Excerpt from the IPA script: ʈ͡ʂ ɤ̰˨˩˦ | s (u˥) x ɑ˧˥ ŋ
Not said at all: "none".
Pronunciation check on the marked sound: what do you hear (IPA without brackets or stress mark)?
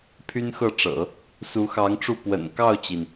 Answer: u˧˥